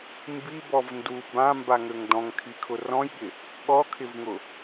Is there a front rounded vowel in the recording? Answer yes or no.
yes